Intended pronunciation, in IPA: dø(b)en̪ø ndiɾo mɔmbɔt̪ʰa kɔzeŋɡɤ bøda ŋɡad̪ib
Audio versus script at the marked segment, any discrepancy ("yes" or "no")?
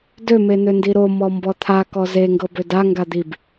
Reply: yes